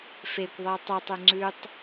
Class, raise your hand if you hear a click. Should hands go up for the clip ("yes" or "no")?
yes